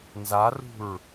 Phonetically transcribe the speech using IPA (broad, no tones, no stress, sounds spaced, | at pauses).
n z a r ṳ ɹ